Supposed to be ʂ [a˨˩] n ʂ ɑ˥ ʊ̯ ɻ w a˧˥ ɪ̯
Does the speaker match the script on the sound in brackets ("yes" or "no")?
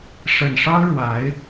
no